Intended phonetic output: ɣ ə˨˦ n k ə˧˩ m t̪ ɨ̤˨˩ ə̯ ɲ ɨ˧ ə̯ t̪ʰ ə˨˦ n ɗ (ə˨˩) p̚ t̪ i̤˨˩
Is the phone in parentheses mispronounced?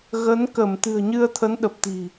no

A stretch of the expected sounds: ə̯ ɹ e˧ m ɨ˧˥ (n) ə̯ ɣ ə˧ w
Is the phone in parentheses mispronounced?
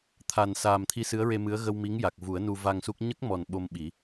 yes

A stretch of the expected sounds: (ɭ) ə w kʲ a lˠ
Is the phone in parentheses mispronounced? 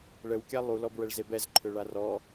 no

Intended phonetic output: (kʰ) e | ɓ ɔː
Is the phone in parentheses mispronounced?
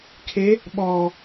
no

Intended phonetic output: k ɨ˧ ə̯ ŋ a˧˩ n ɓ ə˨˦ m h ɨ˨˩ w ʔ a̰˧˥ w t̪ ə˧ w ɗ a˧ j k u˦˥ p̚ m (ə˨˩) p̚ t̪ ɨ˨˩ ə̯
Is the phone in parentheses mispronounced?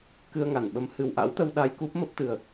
yes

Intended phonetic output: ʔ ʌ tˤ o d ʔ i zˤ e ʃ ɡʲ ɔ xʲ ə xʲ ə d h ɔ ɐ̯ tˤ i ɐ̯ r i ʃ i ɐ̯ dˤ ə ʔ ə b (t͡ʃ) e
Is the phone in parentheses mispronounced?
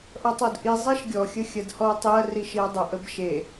yes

